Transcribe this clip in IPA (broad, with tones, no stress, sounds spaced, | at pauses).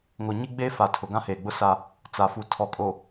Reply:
ŋ o˨ ɲ i˦ ɡ͡b e˦ f a˨ tʰ ʊ˨ ɡ ã˦ h eː˨ ɡ͡b ʊ˦ s a˦ | t͡s a˨ f u˨ tʰ ɔ˨ kʼ o˨